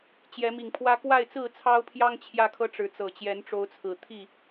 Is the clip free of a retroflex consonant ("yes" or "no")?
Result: no